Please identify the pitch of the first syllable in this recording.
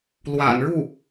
low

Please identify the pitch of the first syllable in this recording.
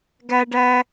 high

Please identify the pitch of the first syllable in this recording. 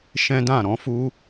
high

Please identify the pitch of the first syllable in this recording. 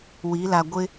rising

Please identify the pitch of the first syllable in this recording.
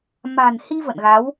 low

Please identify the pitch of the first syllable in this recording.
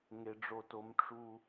low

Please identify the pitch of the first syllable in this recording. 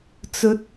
rising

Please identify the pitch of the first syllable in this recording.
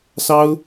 high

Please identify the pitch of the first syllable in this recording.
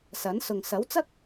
rising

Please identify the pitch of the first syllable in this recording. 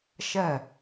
falling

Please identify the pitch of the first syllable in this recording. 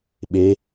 rising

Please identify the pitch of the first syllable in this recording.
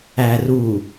low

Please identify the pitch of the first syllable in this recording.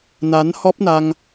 rising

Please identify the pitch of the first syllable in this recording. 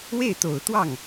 falling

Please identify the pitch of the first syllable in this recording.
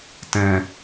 low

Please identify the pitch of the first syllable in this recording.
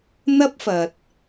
high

